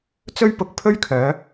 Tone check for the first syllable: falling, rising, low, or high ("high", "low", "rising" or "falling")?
high